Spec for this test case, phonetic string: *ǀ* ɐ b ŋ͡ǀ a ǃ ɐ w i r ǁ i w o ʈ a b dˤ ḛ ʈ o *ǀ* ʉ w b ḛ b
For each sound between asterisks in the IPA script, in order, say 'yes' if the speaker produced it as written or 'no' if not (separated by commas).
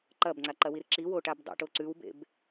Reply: no, yes